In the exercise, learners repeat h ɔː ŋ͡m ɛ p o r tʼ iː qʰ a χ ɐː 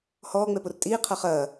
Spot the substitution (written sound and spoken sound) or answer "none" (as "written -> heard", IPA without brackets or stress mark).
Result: none